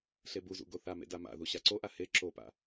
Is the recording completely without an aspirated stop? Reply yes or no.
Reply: yes